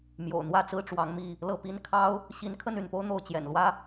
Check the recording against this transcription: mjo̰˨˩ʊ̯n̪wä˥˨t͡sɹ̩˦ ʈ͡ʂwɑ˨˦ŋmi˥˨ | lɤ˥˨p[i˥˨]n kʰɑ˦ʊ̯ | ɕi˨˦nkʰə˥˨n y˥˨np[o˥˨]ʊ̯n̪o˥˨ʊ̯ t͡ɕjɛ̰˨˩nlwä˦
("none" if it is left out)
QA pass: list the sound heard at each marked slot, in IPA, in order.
i˦, o˦

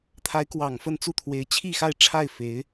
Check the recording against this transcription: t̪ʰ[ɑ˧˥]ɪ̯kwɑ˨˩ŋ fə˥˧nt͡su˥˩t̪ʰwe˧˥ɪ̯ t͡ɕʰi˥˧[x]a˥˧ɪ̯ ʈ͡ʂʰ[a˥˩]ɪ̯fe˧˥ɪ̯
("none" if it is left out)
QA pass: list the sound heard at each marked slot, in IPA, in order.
a˧˥, x, a˥˩

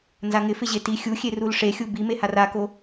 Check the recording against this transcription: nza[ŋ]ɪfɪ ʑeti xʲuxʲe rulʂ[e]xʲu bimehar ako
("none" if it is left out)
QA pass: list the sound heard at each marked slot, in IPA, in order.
ŋ, e

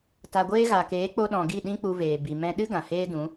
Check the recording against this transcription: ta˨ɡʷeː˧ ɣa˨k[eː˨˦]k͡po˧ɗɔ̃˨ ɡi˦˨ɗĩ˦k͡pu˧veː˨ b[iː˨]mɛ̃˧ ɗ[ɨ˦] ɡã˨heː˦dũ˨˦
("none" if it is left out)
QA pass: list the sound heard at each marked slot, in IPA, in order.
eː˨˦, i˨, ɨ˦

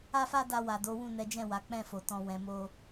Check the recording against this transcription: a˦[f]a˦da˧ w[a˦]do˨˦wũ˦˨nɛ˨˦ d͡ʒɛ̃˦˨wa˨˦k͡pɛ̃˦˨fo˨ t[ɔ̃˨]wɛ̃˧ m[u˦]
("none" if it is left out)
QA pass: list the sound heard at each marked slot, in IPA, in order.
f, a˨, ɔ̃˧, o˦

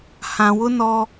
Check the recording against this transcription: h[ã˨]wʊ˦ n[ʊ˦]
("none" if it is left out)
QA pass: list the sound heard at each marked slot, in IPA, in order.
ã˨, ɔ˦

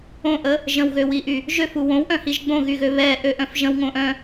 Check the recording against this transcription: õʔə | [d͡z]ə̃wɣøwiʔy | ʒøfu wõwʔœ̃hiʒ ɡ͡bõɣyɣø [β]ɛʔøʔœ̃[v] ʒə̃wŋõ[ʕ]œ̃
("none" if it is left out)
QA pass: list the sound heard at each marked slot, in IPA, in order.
ʒ, β, f, ʔ

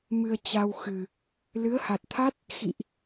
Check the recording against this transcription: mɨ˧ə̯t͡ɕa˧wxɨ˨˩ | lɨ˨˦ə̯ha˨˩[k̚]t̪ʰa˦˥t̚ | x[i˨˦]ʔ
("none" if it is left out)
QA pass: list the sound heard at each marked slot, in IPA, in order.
t̚, ḭ˧˨

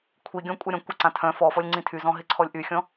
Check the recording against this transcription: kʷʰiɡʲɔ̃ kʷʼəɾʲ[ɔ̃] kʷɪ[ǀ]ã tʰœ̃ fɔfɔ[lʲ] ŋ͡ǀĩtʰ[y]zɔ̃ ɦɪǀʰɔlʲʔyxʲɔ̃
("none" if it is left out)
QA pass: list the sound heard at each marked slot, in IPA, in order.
ɔ̃, ǀ, lʲ, y

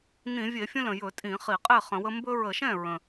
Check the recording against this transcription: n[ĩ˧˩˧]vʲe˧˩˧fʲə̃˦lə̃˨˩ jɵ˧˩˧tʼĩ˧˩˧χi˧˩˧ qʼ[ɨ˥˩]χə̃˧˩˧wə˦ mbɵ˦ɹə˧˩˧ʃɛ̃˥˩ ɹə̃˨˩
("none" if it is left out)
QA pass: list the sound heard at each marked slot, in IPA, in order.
ĩ˧˩˧, e˥˩

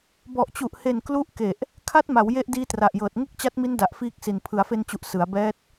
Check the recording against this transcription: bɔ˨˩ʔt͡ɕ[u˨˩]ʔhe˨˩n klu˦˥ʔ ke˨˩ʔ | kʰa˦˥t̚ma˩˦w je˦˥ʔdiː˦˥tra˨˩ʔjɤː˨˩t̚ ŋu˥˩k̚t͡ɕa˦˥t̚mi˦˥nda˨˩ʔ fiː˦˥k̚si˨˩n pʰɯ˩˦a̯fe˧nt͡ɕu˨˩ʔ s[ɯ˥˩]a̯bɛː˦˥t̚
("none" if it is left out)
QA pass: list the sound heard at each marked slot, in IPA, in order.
u˨˩, ɯ˩˦

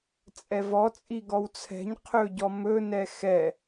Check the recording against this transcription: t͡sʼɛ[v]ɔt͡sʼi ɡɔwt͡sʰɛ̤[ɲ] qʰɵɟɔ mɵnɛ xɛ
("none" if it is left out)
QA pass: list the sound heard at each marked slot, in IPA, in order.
v, ɲ

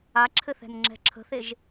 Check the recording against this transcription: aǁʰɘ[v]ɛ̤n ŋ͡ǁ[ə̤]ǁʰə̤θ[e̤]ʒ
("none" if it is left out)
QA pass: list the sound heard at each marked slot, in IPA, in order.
θ, ɛ̤, e

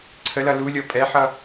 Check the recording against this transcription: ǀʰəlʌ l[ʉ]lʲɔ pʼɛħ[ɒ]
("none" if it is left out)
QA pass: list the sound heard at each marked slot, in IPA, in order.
u, ʌ

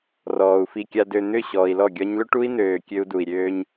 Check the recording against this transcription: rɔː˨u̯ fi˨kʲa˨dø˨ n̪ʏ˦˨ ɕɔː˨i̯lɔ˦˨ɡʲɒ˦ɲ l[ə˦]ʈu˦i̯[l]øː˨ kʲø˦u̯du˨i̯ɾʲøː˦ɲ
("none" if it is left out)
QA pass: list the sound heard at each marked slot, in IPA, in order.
ʏ˦, n̪

